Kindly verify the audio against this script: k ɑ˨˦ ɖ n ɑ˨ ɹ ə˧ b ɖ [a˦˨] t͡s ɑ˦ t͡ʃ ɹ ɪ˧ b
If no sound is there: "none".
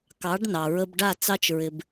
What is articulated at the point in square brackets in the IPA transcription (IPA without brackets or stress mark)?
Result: a˦˨